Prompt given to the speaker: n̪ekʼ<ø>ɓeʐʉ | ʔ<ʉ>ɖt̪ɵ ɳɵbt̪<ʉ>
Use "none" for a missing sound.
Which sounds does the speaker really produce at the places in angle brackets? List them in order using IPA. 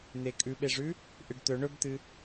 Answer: ʉ, ɨ, ɨ

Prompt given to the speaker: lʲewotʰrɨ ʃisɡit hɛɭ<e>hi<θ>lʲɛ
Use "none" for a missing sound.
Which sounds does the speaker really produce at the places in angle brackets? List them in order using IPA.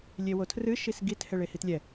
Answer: e, t

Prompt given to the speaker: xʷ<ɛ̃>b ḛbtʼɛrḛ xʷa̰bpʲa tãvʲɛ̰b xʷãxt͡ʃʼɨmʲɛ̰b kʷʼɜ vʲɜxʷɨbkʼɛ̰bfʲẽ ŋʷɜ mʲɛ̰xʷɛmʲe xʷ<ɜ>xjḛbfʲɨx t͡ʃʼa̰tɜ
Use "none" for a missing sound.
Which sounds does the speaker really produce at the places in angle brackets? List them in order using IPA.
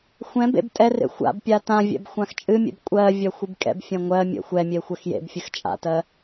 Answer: ɛ̃, ɜ

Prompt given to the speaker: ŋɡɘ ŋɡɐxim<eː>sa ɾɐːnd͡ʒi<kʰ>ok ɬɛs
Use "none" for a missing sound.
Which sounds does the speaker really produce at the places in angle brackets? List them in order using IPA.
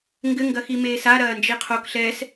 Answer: eː, qʰ

